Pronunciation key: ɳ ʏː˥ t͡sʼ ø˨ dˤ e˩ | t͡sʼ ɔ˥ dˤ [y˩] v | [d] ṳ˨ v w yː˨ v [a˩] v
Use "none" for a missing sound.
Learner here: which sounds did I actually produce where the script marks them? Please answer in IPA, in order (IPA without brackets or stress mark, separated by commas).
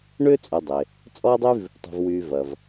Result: y˥, tˤ, ɐ˩